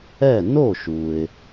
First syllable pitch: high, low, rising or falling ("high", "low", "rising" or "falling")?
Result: falling